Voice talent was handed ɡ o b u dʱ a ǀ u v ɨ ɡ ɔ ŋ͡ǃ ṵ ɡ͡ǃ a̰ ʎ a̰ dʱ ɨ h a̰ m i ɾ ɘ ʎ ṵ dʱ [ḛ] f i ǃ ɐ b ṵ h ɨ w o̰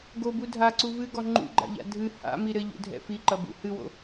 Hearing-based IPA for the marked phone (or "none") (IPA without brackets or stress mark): ɛ̰